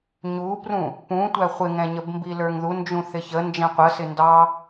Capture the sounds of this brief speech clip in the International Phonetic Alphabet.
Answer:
ɲ u p r ũ | p ũ tʷ æ χʷ ɪ ŋ ɛ̃ ɲ ə b m b i l ə˞ ŋ ð u n d͡ʒ ũ θ ɪ ç ə n d͡ʒ ɛ̃ qʷ ə s ɪ n d ɑ

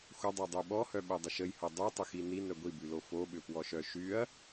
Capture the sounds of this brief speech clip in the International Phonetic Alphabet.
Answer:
xʷ ɐ dˤ œ dˤ y ɓ ɔ h œ ɓ œ dˤ ə ʃ ə j h o dˤ y tˤ ʏ x i n i n œ ɡʷ i b y l o f o ɓ ʏ p w ɔ ʃ œ ʃ y ɐ̯

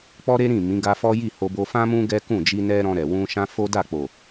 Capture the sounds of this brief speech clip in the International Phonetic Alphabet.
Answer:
k͡p ɔ˦ ɾ e˦ ɾ ĩ˦˨ m ĩ˨˦ ɡ a˧ f ɔ˦ j i˦˨ h o˧ b o˧ f ã˦ m ũ˦ ɡ ɛ˦ k ũ˦˨ d͡ʒ i˧ n ɛ˧ ɾ ɔ̃˧ ɾ ɛ˨ w ũ˧ ʃ ã˦ f o˦ d a˦˨ k͡p o˨

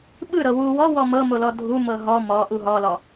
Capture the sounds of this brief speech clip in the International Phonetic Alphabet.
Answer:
ɓ ɯ ɾ ɤ w u w ɔ w ɔ m ɤ m o l ɔ dʱ u m ɤ ɦ ɔ m ɔ ʔ u ɦ ɔ l ɔ

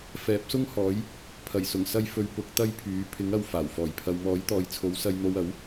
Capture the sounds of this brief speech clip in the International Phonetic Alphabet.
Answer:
f ɛː˨˥ p̚ s ʊ˥ ŋ h ɔː˨˥ j | pʰ ɐ˨˩ j s ʊ˨˩ ŋ s ɐ˧ j f ɵ˨˧ ɥ p ʊ˨˥ k̚ t̪ ɐ˥ j pʰ yː˨˥ pʰ ɪ˨˥ ŋ ɐ˧ w f aː˨˩ w f ɔː˨˩ j pʰ ɐ˨ w m ɔː˨˥ j t̪ ɔː˨ j t͡sʰ o˨˥ w s ɐ˧ j n̪ o˧ w ɐ˨˥ w

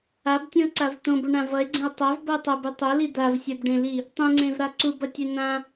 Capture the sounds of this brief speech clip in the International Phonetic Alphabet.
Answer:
a b tʲ ũ o̯ ǀ a v t̪ õ b o ɳ ã v ʌ e̯ ɡ͡ǀ ẽ o̯ tˤ a v b ʌ o̯ tˤ ʌ b ɯ tˤ o l i d̪ a v sʲ ɛ b ɖ ẽ l i | tˤ ũ ŋ͡ǀ ẽ v ɾ a ǀ u b ʌ tʲ ɛ n̪ ã

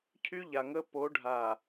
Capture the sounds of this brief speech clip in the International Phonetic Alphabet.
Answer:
cʰ y˦ ʎ a˨ ŋ ə˦ p o˨˦ ɖʱ a˨

